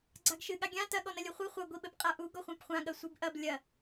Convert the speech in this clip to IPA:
ɡ͡ǀ a ɡ ʃ ɨ ɠ a ɡʲ ã t ɐ ɠ ɔ n ɐ lʲ ɘ χʷ ɨ χʷ ɐ ɡʷ i ɓ ɘ p qʼ a ʔ u ɡ ɔ χʷ ã p χʷ ã ɠ ɐ sʷ i b ʔ ɐ b lʲ ɐ

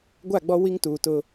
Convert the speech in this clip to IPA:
ɡʷ a˦˨ ɡ͡b ɔ˦ w i˦ ŋ t uː˨ t ʊ˦

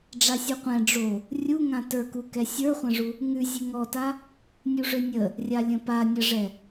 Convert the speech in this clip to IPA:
ɖ͡ʐ a sʲ u qʷ ɛ̃ ɖ͡ʐ o | rʲ u ŋ ã t ə˞ k u k ɛ sʲ ə˞ χʷ ə̃ ʐ u | ŋ ʉ zʲ ʉ ŋ ɔ t a | nʲ u ʐ ø nʲ ə | rʲ a lʲ ə̃ p a nʲ ə ʐ ɛ

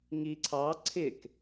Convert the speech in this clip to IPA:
ŋ i ǀʰ ɑ ǀʰ ɪ k

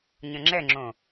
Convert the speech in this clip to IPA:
ɲ ə̃ ŋ͡ǁ ɛ ŋ͡ǁ õ

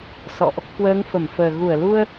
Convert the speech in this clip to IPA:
s ɔ̰˧˨ ʔ | k w əː˨˦ ŋ f ə˧˩ m f əː˨˩ ɣ u˧˩ ə̯ l u˧ ə̯

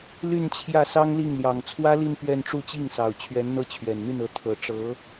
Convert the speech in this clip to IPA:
l y˥˧ n t͡ɕʰ j ä˥˩ s ɑ˥ ŋ l i˥˩ ŋ l j ɑ˨˩ ŋ t͡sʰ w ä˥ l i˥˧ n p ɥ ɛ˥˧ n ʈ͡ʂ u˥˧ t͡ɕ i˥˩ ŋ s ɑ˨˩ ʊ̯ t͡ɕʰ ɥ ɛ˧˥ n n̪ ɤ˥˩ t͡ɕʰ ɥ ɛ˨˩ n n̪ y˥˩ n ɤ˧˥ t̪ʰ ɤ˨˩ ʈ͡ʂ ɤ˧˥

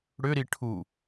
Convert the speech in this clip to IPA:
ɽ ʏ ɾ i ʈʰ u

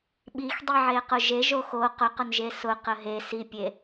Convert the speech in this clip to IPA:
ɓ i x dˤ i ʕ e q ʊ ʒ e ʒ o x o q ʊ q ʊ n ʒ e s ʊ q ə ɦ e s i pʲ e

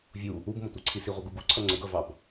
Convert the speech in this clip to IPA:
vʲ u | u b m ʌ tʷ ɑ ǀʰ i s i ʁʷ ə ɡ u ɡ u ǀʰ ʌ ŋ͡ǀ ə ɡ ʌ v ɑ b

